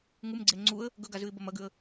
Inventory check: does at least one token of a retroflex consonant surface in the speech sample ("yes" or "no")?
no